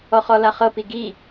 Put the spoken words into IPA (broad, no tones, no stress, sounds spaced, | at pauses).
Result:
ɔ χ ɔ l a χ ɤ p i ɡ i